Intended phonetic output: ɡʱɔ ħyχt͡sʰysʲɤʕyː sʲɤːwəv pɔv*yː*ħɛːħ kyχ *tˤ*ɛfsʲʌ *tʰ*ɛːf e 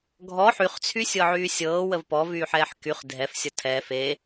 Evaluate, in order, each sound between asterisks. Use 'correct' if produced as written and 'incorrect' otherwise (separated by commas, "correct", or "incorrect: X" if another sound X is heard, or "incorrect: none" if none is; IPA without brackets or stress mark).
correct, incorrect: dʱ, correct